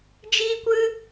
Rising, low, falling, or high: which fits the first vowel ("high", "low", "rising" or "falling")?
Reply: high